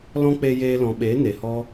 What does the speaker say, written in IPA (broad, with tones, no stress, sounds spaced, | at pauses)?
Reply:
l ɔ̃˦ k͡p e˧ j eː˧ l ɔ̃˨ ɓ e˨˦ n e˨ h ɔ˦